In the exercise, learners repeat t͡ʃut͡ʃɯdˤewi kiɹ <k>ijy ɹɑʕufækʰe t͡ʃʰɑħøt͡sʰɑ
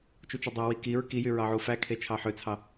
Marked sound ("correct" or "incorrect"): correct